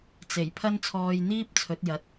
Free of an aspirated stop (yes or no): no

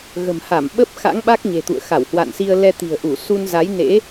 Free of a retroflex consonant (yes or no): yes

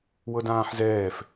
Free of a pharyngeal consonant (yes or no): no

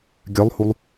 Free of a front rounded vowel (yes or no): no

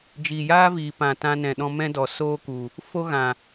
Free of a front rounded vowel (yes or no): yes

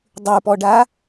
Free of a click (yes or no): yes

